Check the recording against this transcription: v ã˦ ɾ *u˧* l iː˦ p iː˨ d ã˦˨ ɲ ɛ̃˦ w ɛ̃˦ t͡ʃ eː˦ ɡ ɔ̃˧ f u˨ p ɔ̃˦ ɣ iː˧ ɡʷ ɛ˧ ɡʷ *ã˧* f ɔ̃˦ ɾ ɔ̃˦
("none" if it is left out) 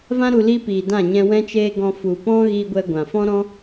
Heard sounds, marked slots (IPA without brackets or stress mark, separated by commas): u˧, ã˨